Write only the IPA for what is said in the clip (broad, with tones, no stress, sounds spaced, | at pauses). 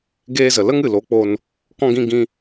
ɡ eː˧ z ə˨ l ə˦ ŋ ɨ˨ l o˨˦ k͡p o˧ n | k ɔ̃˦ ɡ ĩ˦ ɡ ĩ˦